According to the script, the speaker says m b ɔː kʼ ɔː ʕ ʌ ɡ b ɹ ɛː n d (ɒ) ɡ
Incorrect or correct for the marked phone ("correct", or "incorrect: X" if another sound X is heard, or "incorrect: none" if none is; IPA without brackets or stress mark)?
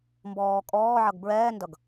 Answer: incorrect: ʌ